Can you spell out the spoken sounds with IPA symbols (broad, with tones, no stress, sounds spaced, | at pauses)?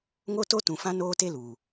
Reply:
ŋ o˦ t o˦ t ũ˨ f ã˦ n oː˦ t e˦ l uː˨